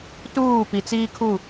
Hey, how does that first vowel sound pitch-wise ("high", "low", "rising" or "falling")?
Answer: falling